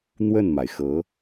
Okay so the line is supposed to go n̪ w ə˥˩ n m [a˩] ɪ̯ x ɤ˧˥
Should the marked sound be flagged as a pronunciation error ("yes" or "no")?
no